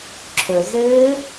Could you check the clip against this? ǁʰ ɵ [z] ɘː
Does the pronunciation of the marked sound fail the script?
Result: no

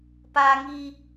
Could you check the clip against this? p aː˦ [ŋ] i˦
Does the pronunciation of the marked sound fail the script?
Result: no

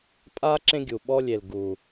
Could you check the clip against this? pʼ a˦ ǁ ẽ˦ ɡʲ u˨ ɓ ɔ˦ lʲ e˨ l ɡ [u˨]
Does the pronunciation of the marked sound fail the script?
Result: no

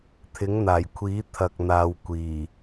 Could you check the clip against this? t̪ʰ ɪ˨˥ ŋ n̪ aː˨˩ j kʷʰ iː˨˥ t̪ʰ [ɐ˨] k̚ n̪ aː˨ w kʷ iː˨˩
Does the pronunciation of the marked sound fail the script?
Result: no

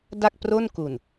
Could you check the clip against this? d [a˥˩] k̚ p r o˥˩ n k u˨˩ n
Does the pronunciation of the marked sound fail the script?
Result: no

